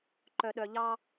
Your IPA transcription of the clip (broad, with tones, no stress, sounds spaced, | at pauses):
ǃ œ˥ ɗ œ˥ ʎ ɑ˥